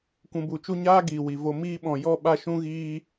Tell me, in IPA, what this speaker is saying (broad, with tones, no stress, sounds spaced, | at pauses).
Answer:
kʷ ũ˧ b u˨˦ t͡ʃ u˦ ɲ aː˦ ɡ iː˨ w i˨ v o˧ m iː˦ ɓ ɔ̃˧ j ɔ˦ ɓ a˦ ʃ ũ˦ ɣ iː˦